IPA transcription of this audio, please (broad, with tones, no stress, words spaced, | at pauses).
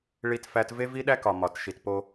ɭi˦tfæ˦t ve˦vi˦ɗæ˦kɒ˨ mɒ˨tʃi˨tpo˦